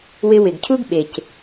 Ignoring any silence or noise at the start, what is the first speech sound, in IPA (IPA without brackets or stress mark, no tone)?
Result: w